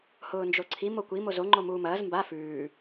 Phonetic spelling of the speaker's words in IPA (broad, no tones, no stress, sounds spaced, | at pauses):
h ʊː n d͡ʒ o ǀʰ i m o kʷ i m o z o ŋ͡ǃ o m uː m ɐː z m b a f ʉː